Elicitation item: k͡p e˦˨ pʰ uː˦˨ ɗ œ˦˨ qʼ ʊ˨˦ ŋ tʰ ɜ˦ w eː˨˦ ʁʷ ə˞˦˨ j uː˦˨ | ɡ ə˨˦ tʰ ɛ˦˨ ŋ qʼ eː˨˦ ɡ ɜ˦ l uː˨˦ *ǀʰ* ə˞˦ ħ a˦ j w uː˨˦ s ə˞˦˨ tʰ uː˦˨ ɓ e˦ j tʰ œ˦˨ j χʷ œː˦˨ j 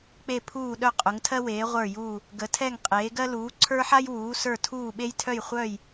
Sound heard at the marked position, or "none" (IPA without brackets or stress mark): ǀʰ